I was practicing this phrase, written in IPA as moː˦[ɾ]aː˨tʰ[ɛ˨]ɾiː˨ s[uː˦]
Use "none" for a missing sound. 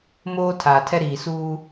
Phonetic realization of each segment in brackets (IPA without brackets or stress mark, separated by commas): tʰ, ɛ˦, uː˦